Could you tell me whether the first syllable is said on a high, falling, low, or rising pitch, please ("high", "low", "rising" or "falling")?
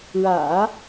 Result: low